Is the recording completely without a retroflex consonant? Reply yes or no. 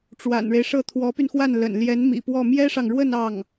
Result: no